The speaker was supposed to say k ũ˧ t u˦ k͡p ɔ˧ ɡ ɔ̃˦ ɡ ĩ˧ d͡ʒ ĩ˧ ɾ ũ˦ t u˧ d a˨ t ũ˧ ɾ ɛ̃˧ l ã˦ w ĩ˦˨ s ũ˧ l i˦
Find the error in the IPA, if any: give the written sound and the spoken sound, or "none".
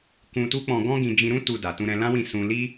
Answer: ɔ˧ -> ɔ̃˧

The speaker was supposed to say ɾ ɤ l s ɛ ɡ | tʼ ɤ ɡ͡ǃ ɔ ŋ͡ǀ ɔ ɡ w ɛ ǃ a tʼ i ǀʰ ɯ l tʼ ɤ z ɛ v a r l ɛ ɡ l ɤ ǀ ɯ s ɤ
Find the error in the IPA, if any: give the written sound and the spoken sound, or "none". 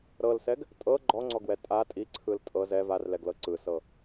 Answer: ǃ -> tʼ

